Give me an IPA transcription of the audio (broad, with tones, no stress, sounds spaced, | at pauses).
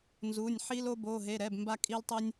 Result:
n z u˩˧˩ nʲ ħ i˧ l o˧ b o˩˧˩ ɦ e˩˧˩ ɾ ɛ˩˧˩ b m b a˧ kʼ i˧ l tˤ i˧ nʲ